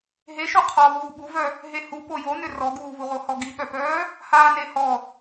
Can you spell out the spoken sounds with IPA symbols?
ɦeʃu qʰɔ vuːɓuvœ | ɦehupo jonʏ rɔɡuːvuʁo hɔɡiɓœpœː | haːnehɔ

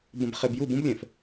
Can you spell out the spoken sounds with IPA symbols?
bə̃˨bχe˨bju˦˨bũ˦b lʲɛ̃˨f

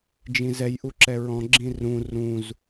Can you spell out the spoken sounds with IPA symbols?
d͡ʒĩzɛjʔu ǁɛɹɔ̃ɡ͡ǁĩ rũ rũz

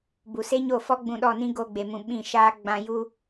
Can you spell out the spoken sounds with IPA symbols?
bu˨se˦ɲo˦˨fɔ˦ ɡ͡bũ˧ ɗɔ˦˨nĩ˦ ɡo˧ɡ͡be˨mũ˨ ɓĩ˦˨ʃaː˦ ɡ͡bã˧ju˦

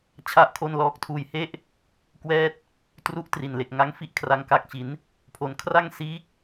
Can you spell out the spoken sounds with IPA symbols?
t͡ɕʰa˥˩ʔkʰo˥˩nlɔː˥˩k̚ tʰuː˧jhe˥˩ʔ | kwɛː˥˩t̚ | tru˦˥ʔ tri˨˩nle˨˩k̚ ŋa˦˥ŋfi˥˩ʔ kʰra˧ŋka˦˥k̚t͡ɕi˩˦n | pʰo˧n kʰra˥˩ŋ siː˦˥k̚

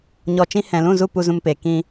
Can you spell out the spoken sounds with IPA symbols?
ɲɔ˧t͡ʃĩ˦ hɛ̃˨lũ˦˨zu˦˨ pu˧zũ˧mpeː˨ kĩ˧

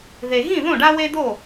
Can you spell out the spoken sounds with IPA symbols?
ðe˩ɣĩ˥˩ ðõ˥˩ɖa˦we˦d̪o˥˩

